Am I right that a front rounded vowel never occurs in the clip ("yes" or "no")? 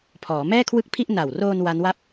yes